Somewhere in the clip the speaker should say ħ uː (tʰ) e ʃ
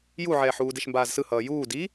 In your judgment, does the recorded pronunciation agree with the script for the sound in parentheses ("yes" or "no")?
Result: no